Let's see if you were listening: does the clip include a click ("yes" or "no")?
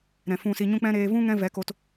no